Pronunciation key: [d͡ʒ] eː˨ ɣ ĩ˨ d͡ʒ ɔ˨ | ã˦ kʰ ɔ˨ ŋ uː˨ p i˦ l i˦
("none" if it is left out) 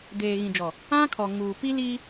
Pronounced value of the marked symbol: d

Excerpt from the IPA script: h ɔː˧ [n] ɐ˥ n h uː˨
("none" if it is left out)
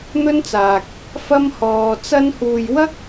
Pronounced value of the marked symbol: t͡s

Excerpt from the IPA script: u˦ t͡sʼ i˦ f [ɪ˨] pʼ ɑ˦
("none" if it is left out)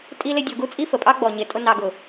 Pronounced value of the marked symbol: ə˨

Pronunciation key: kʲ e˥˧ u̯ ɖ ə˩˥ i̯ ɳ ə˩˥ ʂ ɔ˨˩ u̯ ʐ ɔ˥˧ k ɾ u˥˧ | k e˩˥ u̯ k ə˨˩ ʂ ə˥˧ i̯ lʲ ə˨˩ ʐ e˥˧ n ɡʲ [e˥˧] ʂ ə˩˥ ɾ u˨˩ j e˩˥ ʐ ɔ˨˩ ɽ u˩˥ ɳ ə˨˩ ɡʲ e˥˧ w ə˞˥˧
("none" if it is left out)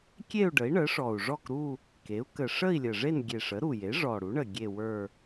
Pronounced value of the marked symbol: e˨˩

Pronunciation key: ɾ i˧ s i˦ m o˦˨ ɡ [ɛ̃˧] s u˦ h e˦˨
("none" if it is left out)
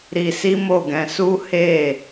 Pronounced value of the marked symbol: ɛ̃˧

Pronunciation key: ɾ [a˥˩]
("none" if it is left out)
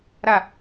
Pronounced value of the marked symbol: a˥˩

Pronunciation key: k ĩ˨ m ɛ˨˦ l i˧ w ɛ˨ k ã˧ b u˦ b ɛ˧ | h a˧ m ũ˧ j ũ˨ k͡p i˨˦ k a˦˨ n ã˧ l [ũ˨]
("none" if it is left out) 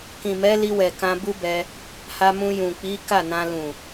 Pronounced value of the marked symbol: ũ˨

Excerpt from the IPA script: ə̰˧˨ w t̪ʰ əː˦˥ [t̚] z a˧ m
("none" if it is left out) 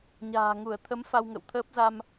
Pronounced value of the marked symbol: p̚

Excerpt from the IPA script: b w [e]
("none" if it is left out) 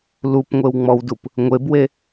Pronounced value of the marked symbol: e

